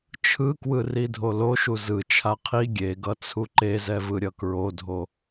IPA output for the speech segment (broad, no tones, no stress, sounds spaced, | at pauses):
t͡ʃʰ ɯ k w ɯ r i dʱ o l o ʃ u z ɯ t͡ʃʰ a qʰ i ɡʲ e ɡ ʌ t͡sʰ u ǃ e z ɛ v ɯ ɾʲ ʌ k ɹ o dʱ o